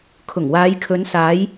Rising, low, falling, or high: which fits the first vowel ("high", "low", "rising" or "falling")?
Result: low